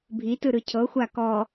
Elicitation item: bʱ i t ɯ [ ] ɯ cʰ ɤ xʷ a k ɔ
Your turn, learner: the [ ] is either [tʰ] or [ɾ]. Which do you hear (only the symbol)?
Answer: ɾ